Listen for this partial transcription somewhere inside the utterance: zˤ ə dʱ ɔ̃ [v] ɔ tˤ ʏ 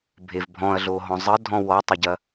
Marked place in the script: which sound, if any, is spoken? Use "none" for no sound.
w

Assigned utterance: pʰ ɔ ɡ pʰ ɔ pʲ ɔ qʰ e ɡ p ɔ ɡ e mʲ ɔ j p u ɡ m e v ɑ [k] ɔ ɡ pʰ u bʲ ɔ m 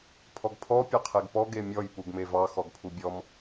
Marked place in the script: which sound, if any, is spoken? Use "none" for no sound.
x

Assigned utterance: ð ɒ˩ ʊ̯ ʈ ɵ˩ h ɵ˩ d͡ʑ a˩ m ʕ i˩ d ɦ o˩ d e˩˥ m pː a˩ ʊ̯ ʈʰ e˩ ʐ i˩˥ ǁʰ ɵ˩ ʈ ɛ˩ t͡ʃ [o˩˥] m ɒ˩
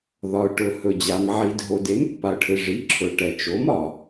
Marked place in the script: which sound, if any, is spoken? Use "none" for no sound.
o˩˥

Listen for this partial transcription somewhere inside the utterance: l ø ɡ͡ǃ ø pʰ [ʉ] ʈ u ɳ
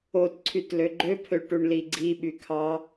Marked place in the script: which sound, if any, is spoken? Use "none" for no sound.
ø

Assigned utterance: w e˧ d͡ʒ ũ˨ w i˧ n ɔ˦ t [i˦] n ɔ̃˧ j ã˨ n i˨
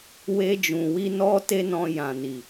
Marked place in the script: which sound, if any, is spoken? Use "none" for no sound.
e˦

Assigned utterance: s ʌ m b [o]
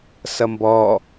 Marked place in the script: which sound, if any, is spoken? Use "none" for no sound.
ɔ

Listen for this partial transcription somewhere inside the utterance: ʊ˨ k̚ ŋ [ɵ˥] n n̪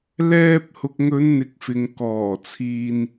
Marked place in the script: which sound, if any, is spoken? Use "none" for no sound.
ɵ˨˧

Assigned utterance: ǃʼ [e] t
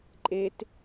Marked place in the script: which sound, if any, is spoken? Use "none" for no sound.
e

